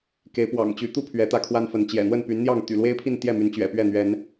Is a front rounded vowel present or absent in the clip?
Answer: present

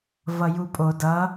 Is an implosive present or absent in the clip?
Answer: absent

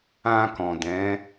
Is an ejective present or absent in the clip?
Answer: absent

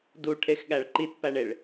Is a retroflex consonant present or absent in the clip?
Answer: present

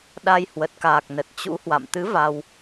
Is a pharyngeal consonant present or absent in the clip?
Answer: absent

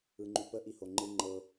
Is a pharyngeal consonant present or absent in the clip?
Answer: absent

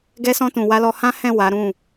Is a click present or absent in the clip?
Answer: absent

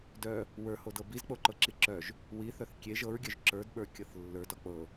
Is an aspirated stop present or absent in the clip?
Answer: absent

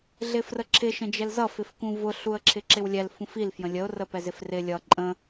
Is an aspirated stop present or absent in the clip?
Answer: present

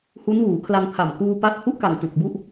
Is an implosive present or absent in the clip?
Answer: absent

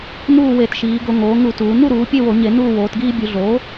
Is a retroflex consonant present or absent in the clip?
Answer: absent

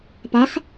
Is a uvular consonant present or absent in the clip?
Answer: absent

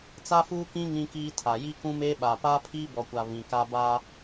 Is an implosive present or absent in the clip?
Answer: present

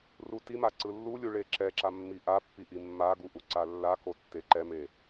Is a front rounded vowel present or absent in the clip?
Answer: absent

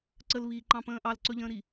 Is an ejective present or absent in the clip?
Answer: absent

